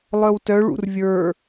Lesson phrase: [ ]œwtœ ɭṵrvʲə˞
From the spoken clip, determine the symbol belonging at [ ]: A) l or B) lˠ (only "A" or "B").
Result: B